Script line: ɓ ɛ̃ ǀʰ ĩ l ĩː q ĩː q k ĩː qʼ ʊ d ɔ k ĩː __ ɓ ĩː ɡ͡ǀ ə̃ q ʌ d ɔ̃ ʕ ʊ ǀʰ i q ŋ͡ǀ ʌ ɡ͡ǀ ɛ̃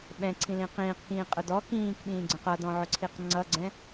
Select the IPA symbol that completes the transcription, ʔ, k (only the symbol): k